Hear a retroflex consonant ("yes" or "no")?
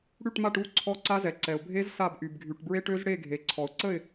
yes